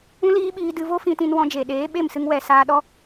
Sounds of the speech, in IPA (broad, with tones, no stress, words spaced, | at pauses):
ũ˦liː˦ɓiː˧ dɨ˧vo˦ fĩ˧tĩ˧nwɔ̃˧ d͡ʒe˨ ɗeː˨˦ɓe˦˨msɨ˧ŋ wɛ˨ saː˧ɗɔ˦